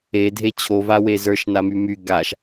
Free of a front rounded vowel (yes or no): no